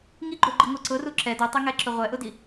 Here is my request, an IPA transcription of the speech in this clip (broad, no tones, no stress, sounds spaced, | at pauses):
ŋ i ɡ͡ǃ o ɡ͡ǃ i ŋʷ ɛ ǀ ʊ r u ǁ ɛ d u tˤ e ŋ ɛ ǁ ʊ ʁʷ ɛ ʔ ʊ d i